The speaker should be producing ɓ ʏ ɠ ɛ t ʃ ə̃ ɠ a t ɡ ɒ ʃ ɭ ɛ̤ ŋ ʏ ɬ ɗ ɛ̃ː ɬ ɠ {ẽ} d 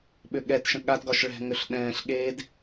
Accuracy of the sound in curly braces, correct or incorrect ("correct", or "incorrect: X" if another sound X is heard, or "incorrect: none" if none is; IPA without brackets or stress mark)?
incorrect: e